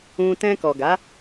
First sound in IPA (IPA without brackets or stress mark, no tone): ũ